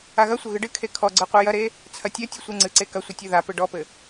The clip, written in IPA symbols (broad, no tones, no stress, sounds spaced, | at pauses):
a ɣ ɐ sʷ ɘ ɣ ɨ ɖ ɨ kʰ e kʰ ɔ ɡ͡ǀ ɘ qʷ e j ɐ ɾ e | t͡sʰ ɐ tʲ ɐ tʲ ɨ sʷ e ŋ͡ǀ ɨ ǀ e k ɐ sʷ ɨ tʲ ɘ ð a p ɘ ɖ ɔ p ɘ